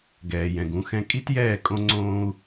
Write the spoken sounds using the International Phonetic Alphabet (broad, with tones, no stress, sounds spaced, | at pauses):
ɡ ɛː˨ j ɛ̃˨ ɡ ũ˨˦ x ɛ̃˦ kʼ i˦ t j ɛː˦˨ kʼ õ˦ ŋ͡ǀ õː˦ u̯